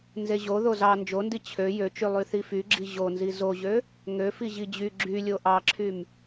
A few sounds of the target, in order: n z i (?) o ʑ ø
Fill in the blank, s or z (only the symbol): z